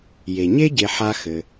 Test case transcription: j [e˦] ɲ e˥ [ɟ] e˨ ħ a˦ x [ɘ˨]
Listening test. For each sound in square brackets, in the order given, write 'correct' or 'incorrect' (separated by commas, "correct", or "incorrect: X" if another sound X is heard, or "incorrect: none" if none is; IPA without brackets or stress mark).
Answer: incorrect: e˩, correct, correct